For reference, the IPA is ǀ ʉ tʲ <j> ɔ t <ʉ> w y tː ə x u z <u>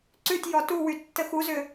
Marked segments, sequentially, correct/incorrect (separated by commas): correct, incorrect, incorrect